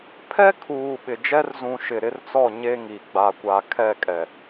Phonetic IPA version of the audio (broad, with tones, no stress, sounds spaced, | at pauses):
pʰ ɛ˦ kʰ uː˨ ɓ ɪ˨ d͡ʒ ɛ˦ r z ũ˨ ʃ ɪ˨ ɾ ɪ˦ r t͡s ɔ˦˨ ɲ e˦ ŋ i˨ ɡ͡b a˨ kʷ a˨ kʰ ɛ˦˨ kʼ ɛ˨